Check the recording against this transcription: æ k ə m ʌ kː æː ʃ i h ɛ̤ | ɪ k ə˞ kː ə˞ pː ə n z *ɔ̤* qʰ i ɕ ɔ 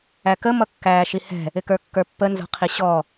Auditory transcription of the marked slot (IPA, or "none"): ɔ̤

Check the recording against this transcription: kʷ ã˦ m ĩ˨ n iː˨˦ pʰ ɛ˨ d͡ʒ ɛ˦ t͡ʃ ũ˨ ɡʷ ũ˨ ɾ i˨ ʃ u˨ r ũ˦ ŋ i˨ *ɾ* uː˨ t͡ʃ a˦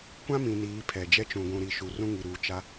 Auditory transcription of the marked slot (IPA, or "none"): ɾ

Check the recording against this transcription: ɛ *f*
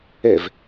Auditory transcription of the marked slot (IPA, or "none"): v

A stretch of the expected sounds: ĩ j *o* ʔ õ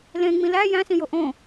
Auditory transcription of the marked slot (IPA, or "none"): o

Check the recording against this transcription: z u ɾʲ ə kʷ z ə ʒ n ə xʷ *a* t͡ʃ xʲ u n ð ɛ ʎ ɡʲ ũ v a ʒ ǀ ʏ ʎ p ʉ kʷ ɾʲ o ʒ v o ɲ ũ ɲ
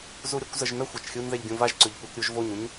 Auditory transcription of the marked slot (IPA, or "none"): a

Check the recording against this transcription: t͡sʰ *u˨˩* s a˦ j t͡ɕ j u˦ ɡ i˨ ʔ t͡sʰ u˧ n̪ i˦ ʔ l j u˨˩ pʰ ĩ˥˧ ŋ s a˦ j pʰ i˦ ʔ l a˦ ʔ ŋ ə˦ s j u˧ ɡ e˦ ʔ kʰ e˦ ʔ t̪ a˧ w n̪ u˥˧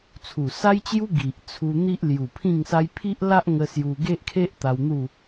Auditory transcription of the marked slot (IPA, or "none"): u˨˩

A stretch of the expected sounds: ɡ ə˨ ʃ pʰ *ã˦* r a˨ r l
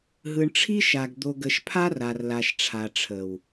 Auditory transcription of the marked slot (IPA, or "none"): a˦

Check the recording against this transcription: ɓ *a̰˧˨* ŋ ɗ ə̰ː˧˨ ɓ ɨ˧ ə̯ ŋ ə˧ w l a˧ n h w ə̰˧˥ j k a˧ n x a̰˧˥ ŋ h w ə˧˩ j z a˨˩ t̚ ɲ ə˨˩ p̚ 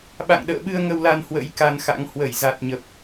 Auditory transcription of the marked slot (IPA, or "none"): a̰˧˨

